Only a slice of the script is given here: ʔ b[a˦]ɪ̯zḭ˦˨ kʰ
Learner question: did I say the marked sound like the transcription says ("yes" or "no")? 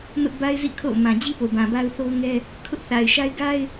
yes